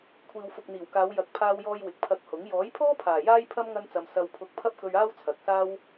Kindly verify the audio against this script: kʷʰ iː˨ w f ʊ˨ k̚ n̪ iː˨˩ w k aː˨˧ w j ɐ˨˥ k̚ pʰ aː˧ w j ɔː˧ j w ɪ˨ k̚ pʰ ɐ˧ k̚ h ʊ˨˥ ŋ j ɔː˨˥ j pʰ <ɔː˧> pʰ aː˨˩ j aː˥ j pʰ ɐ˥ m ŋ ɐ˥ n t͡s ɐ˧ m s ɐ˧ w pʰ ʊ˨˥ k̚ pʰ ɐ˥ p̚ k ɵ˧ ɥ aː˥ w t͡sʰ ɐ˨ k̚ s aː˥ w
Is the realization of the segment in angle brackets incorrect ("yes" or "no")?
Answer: yes